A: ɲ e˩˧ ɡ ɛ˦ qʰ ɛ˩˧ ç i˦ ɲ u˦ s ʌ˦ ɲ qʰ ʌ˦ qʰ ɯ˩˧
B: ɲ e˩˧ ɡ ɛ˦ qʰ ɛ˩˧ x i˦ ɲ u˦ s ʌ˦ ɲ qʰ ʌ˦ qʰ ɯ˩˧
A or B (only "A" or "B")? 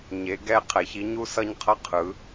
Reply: A